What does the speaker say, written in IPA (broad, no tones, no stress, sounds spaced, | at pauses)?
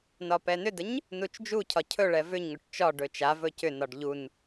n ɒ p ɛ n ʏ d ə ɲ | n u t͡ʃ d͡ʒ u cʰ ɒ cʰ ɵ ɭ ɛ v ʏ ɲ ŋ ɵ ʈ t͡ʃ ɒ ɖ ɵ t͡ʃ a v ɵ c ʏ n ɒ ɖ ʎ u n